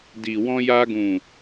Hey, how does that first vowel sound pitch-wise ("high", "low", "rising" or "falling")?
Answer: low